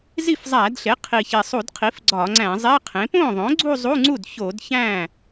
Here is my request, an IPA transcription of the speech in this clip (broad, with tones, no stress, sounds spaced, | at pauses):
z i˥˩ f zˤ æ˧˩˧ d ɬ e˩˥ qʰ i˨˩ ç e˨˩ sˤ u˧˩˧ d qʰ i˩˥ f ɡ͡ǀ ɒ˧˩˧ ŋ͡ǀ æ̃˧˩˧ zˤ e˧˥˧ qʰ ẽ˩˥ p õ˥˩ ðˤ õ˩˥ ɡ͡ǀ u˥˧ zˤ u˧˥˧ ŋ͡ǀ u˥˩ d ç o˧˩˧ d ç æ̃˥˩